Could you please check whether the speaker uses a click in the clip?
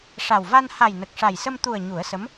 no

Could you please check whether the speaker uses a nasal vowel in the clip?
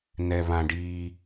yes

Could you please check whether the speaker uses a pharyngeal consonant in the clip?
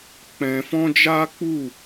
no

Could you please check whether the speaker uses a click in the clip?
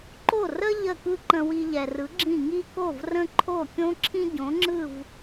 yes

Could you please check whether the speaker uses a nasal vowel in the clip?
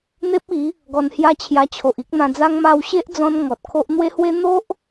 yes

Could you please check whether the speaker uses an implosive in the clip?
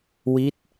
no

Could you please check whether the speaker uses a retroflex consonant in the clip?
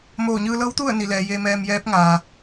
no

